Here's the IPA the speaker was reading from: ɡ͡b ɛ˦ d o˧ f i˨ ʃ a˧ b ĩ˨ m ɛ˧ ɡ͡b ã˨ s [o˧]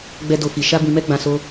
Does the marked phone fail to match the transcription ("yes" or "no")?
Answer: no